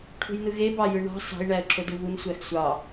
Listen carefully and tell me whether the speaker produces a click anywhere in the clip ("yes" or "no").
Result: yes